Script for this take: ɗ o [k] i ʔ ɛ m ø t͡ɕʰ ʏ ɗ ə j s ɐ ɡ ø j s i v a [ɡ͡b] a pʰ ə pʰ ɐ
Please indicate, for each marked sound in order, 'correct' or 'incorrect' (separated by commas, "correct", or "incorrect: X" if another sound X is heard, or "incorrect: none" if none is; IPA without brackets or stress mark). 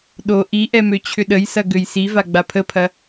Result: incorrect: ʔ, correct